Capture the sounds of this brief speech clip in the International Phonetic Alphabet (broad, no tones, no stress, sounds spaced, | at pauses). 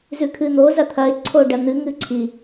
z ʉ kʰ ɨ n̪ o z ɐ t̪ʰ ɐ ɪ̯ ǀʰ o ɖ ɐ n̪ ɨ ŋ ɨ ǀʰ i